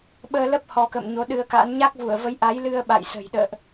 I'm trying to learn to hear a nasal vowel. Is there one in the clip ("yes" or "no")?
no